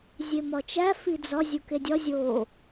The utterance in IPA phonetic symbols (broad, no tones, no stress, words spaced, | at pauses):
zʲemɒt͡ʃæ fid͡zɒ zʲukedʲɒ zʲo